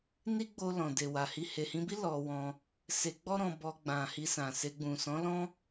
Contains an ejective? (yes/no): no